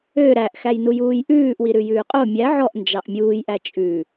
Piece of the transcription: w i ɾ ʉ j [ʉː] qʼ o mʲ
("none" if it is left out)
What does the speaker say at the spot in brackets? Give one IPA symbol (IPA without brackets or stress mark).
ʉː